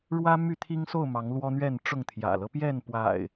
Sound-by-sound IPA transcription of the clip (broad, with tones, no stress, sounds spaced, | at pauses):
ɻ w ä˦ m y˥˨ t̪ʰ i˦ ŋ s o˥˨ ʊ̯ m ɑ˨˦ ŋ l w ɔ˦ n̪ ɥ ɛ˥˨ n ʈ͡ʂ ʊ˥˨ ŋ t̪ʰ j ä̰˨˩ l ɤ˦ p j ɛ˥˨ n p w a̰˨˩ ɪ̯